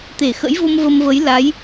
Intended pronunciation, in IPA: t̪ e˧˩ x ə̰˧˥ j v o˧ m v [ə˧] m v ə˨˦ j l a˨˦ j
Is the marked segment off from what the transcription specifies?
no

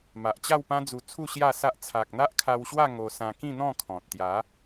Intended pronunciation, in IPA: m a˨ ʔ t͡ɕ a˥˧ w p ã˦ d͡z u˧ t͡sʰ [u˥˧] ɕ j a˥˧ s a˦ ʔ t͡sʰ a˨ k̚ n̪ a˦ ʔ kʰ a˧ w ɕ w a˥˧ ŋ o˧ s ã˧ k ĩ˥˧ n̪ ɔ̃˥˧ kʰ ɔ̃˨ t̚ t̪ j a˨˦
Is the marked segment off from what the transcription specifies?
no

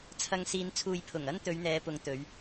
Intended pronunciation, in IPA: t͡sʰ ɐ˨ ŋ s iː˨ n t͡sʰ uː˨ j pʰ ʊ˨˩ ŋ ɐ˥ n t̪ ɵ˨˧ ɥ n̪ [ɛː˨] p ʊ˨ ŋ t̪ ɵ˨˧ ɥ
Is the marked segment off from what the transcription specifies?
yes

